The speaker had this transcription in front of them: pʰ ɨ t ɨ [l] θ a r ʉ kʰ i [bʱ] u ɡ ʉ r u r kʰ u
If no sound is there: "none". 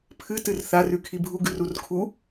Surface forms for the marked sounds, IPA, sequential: r, bʱ

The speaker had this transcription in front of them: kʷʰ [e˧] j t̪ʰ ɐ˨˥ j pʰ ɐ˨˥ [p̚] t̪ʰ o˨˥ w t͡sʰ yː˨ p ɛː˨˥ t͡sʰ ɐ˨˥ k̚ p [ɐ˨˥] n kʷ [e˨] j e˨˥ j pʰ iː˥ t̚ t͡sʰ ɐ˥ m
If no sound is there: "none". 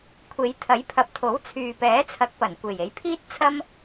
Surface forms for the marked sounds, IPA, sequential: e˨˧, p̚, ɐ˨˩, e˨˩

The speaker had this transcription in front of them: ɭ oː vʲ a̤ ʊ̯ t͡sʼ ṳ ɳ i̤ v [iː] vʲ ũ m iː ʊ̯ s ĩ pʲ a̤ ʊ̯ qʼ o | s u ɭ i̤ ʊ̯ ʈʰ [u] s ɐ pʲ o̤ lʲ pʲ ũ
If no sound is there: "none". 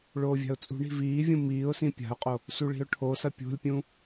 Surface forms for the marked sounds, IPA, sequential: iː, o

